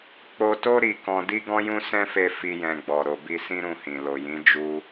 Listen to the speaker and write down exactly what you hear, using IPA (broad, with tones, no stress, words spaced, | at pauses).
k͡po˧to˦ ɾi˧kɔ̃˧ di˦ɡɔ̃˦jũ˦ sɛ̃˦fe˧ fi˦jɛ̃˧ɡ͡bɔ˨ ɾo˨bi˧sĩ˦ ɾũ˦˨hĩ˨ lo˨jĩ˨˦ d͡ʒu˧